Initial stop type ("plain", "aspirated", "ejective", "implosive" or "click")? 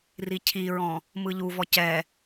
aspirated